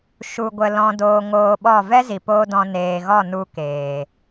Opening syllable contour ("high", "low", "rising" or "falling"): low